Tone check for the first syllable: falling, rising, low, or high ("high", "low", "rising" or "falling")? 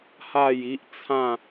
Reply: falling